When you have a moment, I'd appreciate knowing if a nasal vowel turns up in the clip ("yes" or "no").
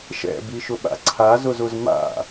no